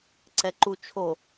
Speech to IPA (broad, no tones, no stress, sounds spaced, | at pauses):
ǀ ɛ ǃ u t͡ʃʰ o